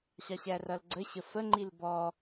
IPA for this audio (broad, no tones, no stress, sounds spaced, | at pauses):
ɕ ɑ ɕ æ r ʌ l ɡ͡ǀ ə ɕ ə f ə ŋ͡ǃ i l b ɔ